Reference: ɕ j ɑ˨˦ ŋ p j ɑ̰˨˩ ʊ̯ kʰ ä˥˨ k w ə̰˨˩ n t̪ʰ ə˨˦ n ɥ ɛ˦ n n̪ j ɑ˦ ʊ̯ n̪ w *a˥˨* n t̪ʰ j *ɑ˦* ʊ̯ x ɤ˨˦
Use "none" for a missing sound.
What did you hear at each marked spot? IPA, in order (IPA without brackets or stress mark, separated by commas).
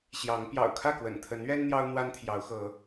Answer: a˦, ɑ˨˦